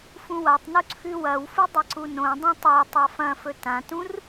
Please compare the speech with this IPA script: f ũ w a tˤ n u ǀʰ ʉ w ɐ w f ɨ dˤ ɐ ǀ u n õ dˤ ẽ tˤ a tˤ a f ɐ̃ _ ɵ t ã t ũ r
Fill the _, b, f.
f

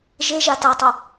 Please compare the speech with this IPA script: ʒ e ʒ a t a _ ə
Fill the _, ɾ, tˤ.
tˤ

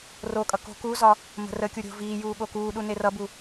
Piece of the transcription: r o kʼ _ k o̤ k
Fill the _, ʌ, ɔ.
ʌ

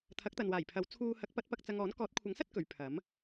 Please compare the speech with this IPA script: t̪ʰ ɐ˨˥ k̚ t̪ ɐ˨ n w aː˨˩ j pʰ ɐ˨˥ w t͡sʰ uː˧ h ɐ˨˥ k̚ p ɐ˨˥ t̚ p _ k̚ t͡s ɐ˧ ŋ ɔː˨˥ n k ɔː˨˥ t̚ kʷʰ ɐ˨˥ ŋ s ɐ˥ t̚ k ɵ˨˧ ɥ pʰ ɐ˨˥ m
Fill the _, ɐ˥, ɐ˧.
ɐ˧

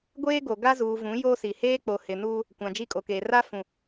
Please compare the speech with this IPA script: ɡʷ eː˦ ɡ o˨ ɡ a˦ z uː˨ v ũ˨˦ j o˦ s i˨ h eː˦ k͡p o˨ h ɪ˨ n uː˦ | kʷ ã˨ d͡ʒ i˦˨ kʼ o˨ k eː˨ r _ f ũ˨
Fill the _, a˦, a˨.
a˦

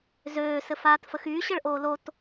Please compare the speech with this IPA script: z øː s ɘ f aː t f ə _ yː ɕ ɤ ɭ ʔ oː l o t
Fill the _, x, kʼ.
x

